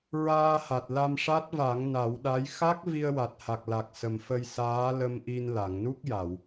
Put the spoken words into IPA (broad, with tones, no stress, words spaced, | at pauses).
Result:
ɹaː˧ha˨˩t̚ la˧mʂa˦˥t̚va˨˩˦ŋ na˨˩˦wɗa˧˥j xa˦˥k̚ vi˧ə̯wa˨˩t̚ha˨˩k̚la˨˩k̚ sə˨˩mfə˧j saː˧˥lə˧mʔi˧n la˨˩˨ŋnu˦˥k̚ja˨˩˨w